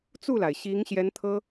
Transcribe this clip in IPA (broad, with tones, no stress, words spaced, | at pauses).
t͡su˥˩la˩ɪ̯ ɕi˧˥ŋɕjɛ˧˥n t̪ʰɤ˥